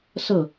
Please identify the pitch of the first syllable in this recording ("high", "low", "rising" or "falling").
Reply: falling